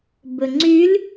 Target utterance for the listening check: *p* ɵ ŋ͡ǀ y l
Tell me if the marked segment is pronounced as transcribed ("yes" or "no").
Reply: no